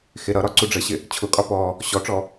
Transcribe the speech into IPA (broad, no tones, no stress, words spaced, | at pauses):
xɪ ɾʌɾɒ ǀuɖ͡ʐəɕɪ | t͡ɕʰʊkʼɒ pɔ | ɕɔʈ͡ʂɔ